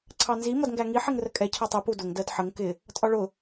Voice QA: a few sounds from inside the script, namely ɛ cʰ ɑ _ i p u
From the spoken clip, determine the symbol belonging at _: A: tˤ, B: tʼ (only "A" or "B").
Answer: A